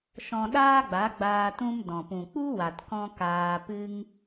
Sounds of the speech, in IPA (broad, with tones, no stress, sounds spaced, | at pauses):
ʃ ɔ̃˧ ɗ aː˦ ɡ͡b a˨˦ ɡ͡b aː˧ t ũ˧ m d ɔ̃˨ p ũ˨ k͡p u˦ w a˨ t k ɔ̃˧ k aː˧ p ɨ˦ ŋ